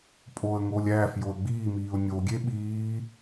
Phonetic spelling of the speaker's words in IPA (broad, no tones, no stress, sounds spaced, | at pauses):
pʼ oː ə̯ ŋ oː lʲ æː f j o ə̯ ɡ͡b iː m iː ʊ̯ nʲ o ɡʲ e ɓ iː